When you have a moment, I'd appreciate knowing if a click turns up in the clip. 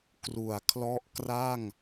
no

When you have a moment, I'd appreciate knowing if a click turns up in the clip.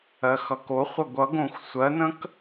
no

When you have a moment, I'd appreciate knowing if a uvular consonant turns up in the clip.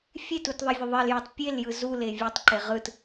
yes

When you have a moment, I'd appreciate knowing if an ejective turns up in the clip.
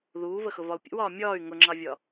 no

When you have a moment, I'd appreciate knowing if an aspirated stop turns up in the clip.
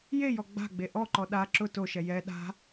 no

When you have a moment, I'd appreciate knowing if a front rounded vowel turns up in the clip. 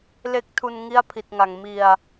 no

